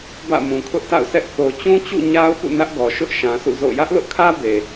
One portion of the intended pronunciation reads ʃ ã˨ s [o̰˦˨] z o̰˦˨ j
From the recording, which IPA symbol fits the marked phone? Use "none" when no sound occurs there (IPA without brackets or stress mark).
ṵ˦˨